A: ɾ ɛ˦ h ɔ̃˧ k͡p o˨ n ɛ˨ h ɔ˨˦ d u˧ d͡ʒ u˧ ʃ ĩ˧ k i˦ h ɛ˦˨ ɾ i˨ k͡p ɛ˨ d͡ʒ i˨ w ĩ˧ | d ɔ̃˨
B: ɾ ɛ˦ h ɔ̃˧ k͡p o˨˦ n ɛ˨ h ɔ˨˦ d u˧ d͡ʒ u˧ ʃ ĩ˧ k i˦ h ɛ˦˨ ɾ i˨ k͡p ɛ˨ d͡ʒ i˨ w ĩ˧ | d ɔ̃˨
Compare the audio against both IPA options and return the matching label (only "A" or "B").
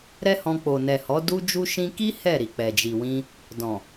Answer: A